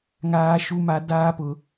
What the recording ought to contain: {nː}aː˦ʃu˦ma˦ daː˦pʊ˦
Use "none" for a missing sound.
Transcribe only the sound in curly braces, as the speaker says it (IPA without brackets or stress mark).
ŋ